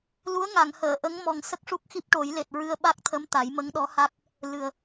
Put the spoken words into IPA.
lu˧˥ə̯ŋa˨˩˨ŋhəː˨˩˨ ʔə˧˥ŋ mɔ˨˩ŋ sə˦˥k̚ʂu˦˥k̚xi˦˥p̚ ʈo˨˩˦jle˨˩t̚ɹɨ˧ə̯ ɓa˦˥k̚t̪ʰə˧˥m t̪a˨˩˦jmə˧˥ŋɗɔ˧˥ha˦˥k̚ | lɨ˨˩ə̯

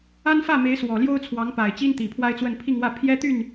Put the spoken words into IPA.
a˥nfä˥˩me˧˥ɪ̯ swɔ˨˩ljo˥ʊ̯t͡sʰwɑ˧˥ŋ pa˨˩ɪ̯t͡ɕi˥n t̪i˨˩pʰwa˥ɪ̯t͡swə˥˧n pʰi˥˧ŋwä˥˩ pʰjɛ˥t̪y˥˩n

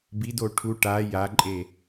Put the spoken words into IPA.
bido ʈʰu ʈa jaǃʼe

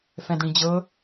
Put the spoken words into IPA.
fɛ̃dɽĩd͡ʑɤ

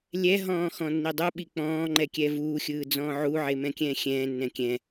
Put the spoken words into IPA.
lʲɛɦɔ̃ː xɔ̃nːidˤuɓi k͡pɔ̃ːŋ͡ǃɛ kʲɛvuːxʲɯː d͡zɔ̃ːʕuʕe mɛ̃kʲɛ̃ːxʲɛ̃ːnːɛ̃ kʲɛ̃

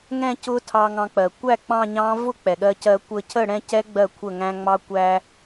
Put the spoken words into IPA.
ŋɛ̃˥˧cʊ˦˥tʰɑ˧ ŋɑ̃˧k͡pɜ˩ kʷæ˥˩ k͡pɑ̃˥˧ɲɑ̃˦˥ vʊ˥˧k͡pɛ˩ɠɜ˧cɜ˧ kʷə˧cʰə˥˩ ɽɛ̃˥˧cɛ˦˥ ɡ͡bɜ˥˩kʷʰə˥˩ ŋæ̃˧ŋ͡mɑ˧ kʷæ˧

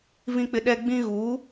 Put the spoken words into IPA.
vĩ˦k͡pɪ˦ ɗɛ˦ ɡ͡bĩ˦ɣuː˨˦

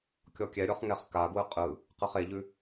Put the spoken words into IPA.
kʲɔkʲɛɾʲɔχ ŋɛχkaɡwɯ qʼɯ | qɯχeʎʉ

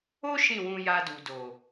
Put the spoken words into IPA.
o˦ ʃĩ˦˨wũ˧ ja˧du˨do˨

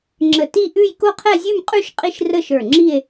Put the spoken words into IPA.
ŋ͡ǁə˧˩ ti˥˧ʔʉ˥˧j ko˥˧qʰɛ˥˧zʲʉ˥˧mqʼʉ˥˧ʃ qʼi˥˧ʃrə˥˧ʃə˞˧˩ŋ͡ǁi˥˧e̯

